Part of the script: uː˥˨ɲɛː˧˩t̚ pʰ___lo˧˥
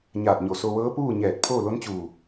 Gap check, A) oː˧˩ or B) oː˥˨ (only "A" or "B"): B